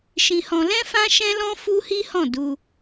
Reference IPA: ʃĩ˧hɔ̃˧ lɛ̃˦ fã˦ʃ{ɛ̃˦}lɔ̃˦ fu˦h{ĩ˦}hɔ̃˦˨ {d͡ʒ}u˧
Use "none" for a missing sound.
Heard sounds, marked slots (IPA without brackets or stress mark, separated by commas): ɛ̃˦, i˦, d